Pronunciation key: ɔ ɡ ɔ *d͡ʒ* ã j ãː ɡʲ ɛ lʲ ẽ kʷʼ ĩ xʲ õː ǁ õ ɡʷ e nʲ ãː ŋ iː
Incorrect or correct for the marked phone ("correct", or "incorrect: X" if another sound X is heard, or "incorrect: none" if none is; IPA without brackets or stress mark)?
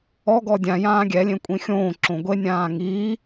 incorrect: dʲ